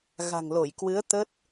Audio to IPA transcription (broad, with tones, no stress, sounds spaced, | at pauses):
ɣ a̤˨˩ ŋ l o˧˩ j k w ɨ˨˦ ə̯ t̪ ə˦˥ t̚